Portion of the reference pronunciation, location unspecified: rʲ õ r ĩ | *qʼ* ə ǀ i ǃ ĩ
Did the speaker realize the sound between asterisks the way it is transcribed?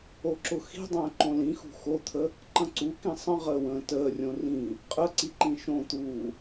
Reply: yes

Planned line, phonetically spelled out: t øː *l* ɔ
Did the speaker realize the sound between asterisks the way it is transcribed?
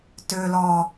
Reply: yes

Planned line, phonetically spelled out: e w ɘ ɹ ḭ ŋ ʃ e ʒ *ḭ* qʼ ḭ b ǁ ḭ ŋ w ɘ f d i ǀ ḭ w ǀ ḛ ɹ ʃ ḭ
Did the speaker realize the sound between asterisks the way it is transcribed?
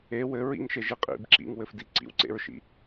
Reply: no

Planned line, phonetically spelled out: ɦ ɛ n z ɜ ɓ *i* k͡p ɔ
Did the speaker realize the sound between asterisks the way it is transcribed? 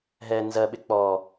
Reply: no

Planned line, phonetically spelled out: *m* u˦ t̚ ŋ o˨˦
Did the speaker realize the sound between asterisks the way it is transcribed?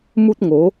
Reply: yes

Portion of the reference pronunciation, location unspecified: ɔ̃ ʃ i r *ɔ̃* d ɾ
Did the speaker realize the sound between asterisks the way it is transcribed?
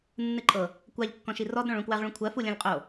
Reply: no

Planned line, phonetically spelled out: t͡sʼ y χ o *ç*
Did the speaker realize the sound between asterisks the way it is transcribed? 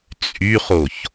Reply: yes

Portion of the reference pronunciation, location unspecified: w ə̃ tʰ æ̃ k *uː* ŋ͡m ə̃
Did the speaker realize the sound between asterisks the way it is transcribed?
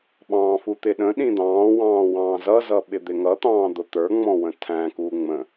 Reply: yes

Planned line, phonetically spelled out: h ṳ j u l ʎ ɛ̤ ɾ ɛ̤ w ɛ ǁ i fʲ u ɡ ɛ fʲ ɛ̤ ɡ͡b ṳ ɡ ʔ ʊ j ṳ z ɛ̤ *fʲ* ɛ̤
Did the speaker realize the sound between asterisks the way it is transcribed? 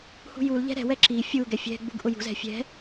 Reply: yes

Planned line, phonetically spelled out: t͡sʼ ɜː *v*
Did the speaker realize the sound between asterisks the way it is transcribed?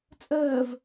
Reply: yes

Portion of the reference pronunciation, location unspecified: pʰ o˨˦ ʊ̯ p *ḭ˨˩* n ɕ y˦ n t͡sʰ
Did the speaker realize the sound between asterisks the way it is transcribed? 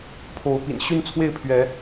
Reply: yes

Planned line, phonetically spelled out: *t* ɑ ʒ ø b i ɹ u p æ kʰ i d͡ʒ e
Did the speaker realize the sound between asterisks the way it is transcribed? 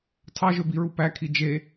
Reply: no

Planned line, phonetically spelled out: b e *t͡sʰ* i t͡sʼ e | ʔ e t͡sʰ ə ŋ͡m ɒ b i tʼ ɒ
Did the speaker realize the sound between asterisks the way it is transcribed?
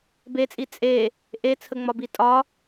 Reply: no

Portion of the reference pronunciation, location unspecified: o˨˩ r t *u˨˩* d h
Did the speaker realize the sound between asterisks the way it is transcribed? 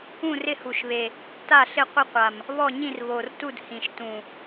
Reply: no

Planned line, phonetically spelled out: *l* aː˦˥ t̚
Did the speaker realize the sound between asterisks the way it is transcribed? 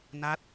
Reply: no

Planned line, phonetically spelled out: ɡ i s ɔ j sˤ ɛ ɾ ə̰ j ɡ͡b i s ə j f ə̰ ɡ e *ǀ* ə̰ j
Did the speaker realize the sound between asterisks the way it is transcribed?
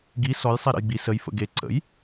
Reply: yes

